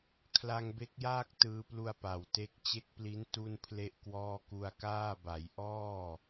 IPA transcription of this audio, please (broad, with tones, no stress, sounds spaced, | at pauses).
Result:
kʰ l a˧ ŋ b e˦˥ k̚ j aː˥˩ k̚ t ɯː˧ p l u˧ a̯ p a˨˩ w t e˦˥ k̚ t͡ɕ e˦˥ k̚ p l i˦˥ n t u˥˩ n pʰ l e˥˩ ʔ k w ɔː˥˩ k u˧ a̯ k aː˥˩ b a˩˦ j ʔ ɔː˥˩